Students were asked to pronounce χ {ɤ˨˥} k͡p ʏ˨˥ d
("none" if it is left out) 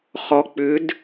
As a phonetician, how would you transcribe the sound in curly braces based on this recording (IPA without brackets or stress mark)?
ɔ˨˥